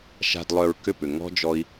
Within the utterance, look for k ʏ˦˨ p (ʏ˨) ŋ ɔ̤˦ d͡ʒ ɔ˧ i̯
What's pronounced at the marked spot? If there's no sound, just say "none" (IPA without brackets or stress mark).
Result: ʏ˨